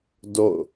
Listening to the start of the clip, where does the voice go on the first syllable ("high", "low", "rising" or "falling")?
falling